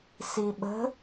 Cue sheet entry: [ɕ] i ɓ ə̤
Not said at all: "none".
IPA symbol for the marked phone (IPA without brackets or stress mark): s